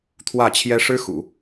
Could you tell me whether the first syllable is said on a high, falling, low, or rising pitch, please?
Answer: falling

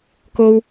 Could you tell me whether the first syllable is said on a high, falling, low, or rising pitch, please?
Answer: high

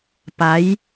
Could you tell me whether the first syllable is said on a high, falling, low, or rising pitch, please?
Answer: rising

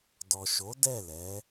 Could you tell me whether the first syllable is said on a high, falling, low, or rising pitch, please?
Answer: low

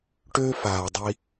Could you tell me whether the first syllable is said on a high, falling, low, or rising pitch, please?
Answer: high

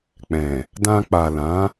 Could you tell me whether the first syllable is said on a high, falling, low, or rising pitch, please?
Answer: low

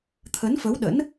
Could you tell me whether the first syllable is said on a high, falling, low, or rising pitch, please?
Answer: rising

